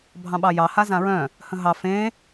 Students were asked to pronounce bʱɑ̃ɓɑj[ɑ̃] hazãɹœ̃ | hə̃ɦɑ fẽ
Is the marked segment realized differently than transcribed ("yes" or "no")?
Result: yes